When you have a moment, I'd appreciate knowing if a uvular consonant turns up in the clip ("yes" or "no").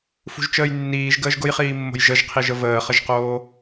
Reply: yes